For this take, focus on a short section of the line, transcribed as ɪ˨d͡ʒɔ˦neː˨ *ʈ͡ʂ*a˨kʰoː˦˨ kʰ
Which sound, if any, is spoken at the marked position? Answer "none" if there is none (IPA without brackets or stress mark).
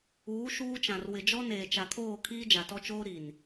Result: t͡ʃ